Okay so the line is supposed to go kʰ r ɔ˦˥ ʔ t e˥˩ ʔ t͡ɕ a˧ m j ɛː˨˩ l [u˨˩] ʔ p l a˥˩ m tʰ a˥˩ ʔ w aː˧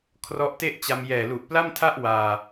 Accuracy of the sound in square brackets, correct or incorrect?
correct